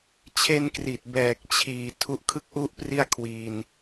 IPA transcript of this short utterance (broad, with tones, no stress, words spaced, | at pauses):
t͡ɕʰe˧nkri˨˩t̚ bɛː˨˩k̚t͡ɕʰiː˨˩ tʰu˦˥ʔkʰɯ˥˩k̚ʔu˥˩ʔ pri˥˩a̯kʰwiː˧n